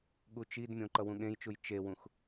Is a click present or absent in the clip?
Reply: present